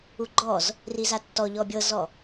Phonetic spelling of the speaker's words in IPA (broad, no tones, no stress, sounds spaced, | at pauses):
u ɡ͡ǃ ɔ z | r i z a tː ɔ ʎ ɔ bʲ ɤ z ɔ